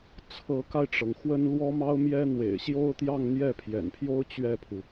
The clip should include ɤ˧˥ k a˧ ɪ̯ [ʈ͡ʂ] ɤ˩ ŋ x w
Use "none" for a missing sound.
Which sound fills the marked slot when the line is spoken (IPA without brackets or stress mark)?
ʈ͡ʂ